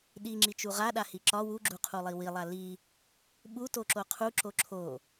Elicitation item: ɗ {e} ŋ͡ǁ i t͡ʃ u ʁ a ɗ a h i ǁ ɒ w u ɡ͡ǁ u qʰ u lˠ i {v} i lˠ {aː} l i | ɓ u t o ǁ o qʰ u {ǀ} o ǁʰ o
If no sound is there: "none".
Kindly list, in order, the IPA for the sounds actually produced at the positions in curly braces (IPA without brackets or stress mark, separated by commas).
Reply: i, w, a, ǁ